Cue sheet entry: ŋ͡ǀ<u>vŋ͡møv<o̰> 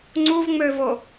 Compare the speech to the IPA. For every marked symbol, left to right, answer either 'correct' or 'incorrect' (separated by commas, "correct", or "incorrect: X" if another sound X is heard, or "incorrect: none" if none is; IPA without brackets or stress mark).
correct, incorrect: o